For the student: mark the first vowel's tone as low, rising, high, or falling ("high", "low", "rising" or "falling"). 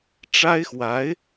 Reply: high